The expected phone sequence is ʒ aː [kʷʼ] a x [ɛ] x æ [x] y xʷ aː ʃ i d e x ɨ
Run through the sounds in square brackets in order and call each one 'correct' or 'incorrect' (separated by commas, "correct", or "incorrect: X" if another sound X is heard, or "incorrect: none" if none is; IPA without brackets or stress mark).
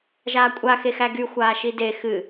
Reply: correct, incorrect: e, incorrect: ɡ